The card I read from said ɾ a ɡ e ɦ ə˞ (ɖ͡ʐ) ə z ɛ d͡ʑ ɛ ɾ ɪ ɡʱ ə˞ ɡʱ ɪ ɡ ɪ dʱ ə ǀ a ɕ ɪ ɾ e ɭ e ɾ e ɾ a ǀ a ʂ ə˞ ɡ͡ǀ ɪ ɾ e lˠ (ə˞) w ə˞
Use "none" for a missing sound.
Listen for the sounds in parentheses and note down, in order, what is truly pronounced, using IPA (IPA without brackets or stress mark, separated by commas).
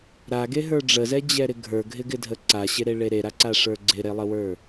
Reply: ɖ͡ʐ, ə